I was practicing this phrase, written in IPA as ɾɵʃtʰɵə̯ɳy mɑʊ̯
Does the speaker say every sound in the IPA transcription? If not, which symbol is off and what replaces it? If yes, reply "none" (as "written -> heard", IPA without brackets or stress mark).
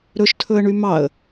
ʊ̯ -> ə̯